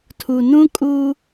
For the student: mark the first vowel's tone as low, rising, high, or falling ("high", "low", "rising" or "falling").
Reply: low